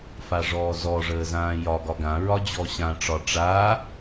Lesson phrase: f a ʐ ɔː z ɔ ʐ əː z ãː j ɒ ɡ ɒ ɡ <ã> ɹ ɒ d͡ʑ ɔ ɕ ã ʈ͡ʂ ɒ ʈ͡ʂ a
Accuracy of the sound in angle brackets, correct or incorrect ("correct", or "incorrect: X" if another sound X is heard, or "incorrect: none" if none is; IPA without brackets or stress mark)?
correct